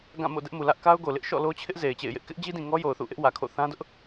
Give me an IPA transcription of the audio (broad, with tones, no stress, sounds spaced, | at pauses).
ɡ ã˦˨ m o̰˦˨ d ɛ˦ ʔ m u˨ l ä˦ ʔ k a˦ ʊ̯ ɡ o˨ l ɪ˦ ʔ ʃ ɔ̰˦˨ l o˦ t͡ɕʰ ɪ˦ ʔ z e˨ ɪ̯ t͡ɕ ḛ˦˨ ɪ̯ j ɪ˦ ʔ k ɪ˦ ʔ d͡ʑ i˦ d ĩ˨ ŋ ɔ˦ j o˨ ʊ̯ θ ṵ˦˨ ʔ ɪ˦ ʔ w ä˨ kʰ o̰˦˨ θ ã˦ d ʊ˦ ʔ